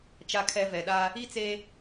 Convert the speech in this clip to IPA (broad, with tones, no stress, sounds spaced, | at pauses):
t͡ʃ a˨ kʰ ɛ˨ v ɛ˨ ɗ a˦ | i˦ t͡s e˦